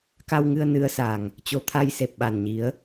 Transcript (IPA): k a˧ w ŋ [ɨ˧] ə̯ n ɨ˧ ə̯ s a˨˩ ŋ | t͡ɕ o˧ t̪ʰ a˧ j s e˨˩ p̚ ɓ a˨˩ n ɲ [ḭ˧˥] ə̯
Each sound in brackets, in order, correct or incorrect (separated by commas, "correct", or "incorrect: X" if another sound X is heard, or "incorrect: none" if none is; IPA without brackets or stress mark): correct, incorrect: i˨˦